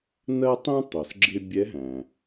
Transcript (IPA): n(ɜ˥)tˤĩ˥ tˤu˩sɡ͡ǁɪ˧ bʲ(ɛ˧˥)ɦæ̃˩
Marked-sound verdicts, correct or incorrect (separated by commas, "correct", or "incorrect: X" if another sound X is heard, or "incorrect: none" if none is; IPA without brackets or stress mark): correct, correct